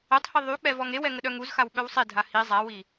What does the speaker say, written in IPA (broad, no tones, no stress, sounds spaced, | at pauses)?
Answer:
ɛ tˤ h i ðˤ y k͡p ɛ v ɔ ŋ e w ɛ ŋ ə ɗ œ ŋ u z x a w ɓ œ w sˤ i dʱ a h i zˤ a w i